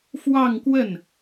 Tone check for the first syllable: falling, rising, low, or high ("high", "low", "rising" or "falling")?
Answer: falling